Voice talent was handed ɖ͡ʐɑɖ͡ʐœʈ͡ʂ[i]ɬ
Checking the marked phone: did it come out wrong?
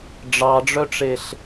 yes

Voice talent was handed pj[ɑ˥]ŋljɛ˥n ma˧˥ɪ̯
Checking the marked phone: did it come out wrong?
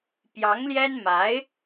yes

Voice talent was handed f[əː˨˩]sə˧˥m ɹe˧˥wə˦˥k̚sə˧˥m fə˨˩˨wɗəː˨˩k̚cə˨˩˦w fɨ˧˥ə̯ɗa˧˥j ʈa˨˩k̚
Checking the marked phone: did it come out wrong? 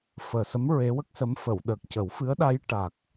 no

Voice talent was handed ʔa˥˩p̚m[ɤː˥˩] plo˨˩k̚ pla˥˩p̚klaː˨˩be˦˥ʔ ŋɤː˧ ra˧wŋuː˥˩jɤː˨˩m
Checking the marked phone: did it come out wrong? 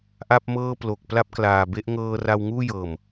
no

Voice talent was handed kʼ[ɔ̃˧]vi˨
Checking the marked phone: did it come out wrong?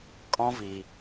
no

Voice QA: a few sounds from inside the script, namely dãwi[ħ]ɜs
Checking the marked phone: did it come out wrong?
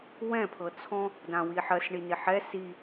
no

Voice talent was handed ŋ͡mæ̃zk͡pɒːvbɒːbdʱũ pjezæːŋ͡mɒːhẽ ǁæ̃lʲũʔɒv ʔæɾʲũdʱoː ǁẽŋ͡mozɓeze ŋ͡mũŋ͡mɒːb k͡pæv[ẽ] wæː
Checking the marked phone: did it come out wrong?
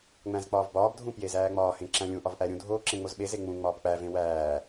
no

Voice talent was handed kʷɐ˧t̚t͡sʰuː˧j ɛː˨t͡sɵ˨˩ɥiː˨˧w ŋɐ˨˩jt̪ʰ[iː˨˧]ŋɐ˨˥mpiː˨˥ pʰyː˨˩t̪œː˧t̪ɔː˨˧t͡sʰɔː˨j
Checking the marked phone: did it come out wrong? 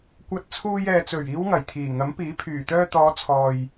yes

